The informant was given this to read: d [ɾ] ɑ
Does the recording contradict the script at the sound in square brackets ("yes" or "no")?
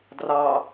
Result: yes